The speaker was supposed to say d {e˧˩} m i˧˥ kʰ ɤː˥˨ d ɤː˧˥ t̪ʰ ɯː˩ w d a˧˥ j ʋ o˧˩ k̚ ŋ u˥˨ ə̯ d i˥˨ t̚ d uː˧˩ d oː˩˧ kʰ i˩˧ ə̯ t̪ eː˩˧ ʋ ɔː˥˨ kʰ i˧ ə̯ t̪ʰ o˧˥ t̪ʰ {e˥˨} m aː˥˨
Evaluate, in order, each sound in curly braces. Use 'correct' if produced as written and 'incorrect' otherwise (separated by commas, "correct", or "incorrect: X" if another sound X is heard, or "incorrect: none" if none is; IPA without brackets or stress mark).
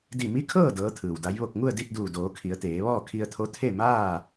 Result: incorrect: i˧˩, correct